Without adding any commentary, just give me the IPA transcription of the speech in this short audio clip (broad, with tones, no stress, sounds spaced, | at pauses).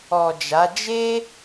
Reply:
ɔ˨ d͡ʒ a˨˦ d͡ʒ e˦